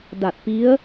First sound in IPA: d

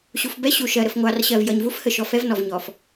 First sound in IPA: ɕ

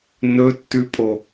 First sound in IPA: n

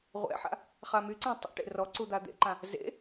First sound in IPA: ʁʷ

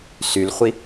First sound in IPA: s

